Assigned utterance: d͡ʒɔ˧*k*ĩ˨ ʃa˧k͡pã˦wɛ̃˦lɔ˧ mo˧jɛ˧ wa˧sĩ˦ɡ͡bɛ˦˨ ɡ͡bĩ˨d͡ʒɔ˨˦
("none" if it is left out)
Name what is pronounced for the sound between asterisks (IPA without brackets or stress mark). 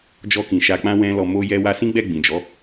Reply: k